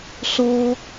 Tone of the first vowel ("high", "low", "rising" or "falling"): high